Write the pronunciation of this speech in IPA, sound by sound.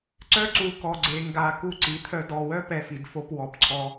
ǀ œ˦ ǀ u˨ k ɔ˨ ɡ͡ǀ e˨ ŋ ɡ a˨ k u˦˨ ǀ i˨˦ t̪ʰ œ˦ d ɔ˨ w œ˦ p ɛ˦˨ f i˨ d f o˦ p w ɔ˨ p ǀʰ ɔ˦

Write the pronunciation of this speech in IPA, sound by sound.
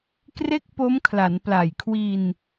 k r e˥˩ k̚ p o˦˥ m kʰ l a˩˦ n p l a˨˩ j kʰ w i˧ n

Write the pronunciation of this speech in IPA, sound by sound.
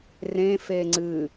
r ẽ f e ŋ͡ǀ ɨ

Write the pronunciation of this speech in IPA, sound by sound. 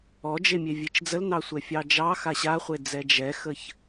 ɔ d͡ʒ e mʲ e vʲ e t͡ʃ d͡z ə l n ɑ sʷ ɛ fʲ ɑ d͡ʒ ɑ x a ɕ a χʷ e d͡z ɛ d͡ʒ ɛ x ə ç

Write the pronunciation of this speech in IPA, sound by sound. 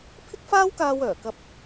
pʰ ɪ˥ k̚ f aː˥ w k aː˧ w œː˨˩ k ɐ˧ p̚

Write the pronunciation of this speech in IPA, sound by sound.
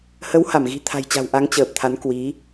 h ə˨˦ w h a˧˩ m ɣ i̤˨˩ t̪ʰ a̤˨˩ j t͡ɕ a̤˨˩ w ʔ a˨˦ ŋ t͡ɕ əː˨˩ p̚ t̪ʰ a˨˦ n k w i˨˦

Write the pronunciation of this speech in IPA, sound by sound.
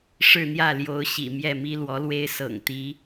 ʂ ɻ̩˥˧ n̪ j ä˥˩ l j o˧˥ ʊ̯ ɕ ḭ˨˩ m j ɛ˥˩ m i˥ l w ɔ˧˥ l w e˥ ɪ̯ s ɤ̰˨˩ ŋ t̪ i˧˥

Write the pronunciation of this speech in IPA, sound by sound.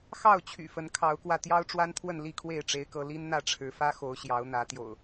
x ɑ˥˨ ʊ̯ t͡ɕʰ y̰˨˩ f ə˨˦ n kʰ ɑ˨˦ ʊ̯ k w ä˧ t̪ j ɑ˦ ʊ̯ ʈ͡ʂ w a˦ n t̪ʰ w ə˥˨ n l i˥˨ kʰ w e˥˨ ɪ̯ ʈ͡ʂ e˦ ɪ̯ k ɤ˦ l i˦ n n̪ ä˥˨ ʈ͡ʂʰ ɻ̩˨˦ f ä˦ x o˨˦ ʊ̯ ɕ j ɑ˨˦ ʊ̯ n̪ ä˨˦ t̪ j o̰˨˩ ʊ̯

